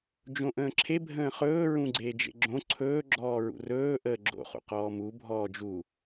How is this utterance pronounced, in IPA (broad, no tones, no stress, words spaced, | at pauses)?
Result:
d͡ʒõʔə̃ːǁʰe bʱə̃ːχɵː ɹũɡ͡ǀeːd͡ʒḛɡ͡ǁõ ǀʰɵː ɡ͡ǁɔːɹṵrɵː ʔəːɡ͡ǁo̰ χṵqɔːmu bʱɔːd͡ʒu